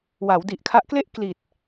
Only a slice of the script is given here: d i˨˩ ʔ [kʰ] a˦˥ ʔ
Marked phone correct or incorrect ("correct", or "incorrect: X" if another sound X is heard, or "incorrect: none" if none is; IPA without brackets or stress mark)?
correct